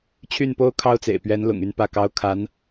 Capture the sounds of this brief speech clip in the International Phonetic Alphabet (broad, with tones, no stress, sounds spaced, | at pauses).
t͡ɕʰ y˥˩ n p o˥ ʊ̯ kʰ ɑ˥ ʊ̯ t͡s ḛ˨˩ ɪ̯ p ɥ ɛ˧˥ n l ʊ̰˨˩ ŋ y˥˧ n p ä˥˩ k ɑ˥ ʊ̯ kʰ a˧˥ n